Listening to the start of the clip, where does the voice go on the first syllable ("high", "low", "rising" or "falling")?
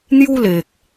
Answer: high